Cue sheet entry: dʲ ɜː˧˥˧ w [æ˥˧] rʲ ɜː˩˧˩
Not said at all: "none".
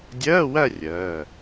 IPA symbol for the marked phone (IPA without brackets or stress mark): æ˥˧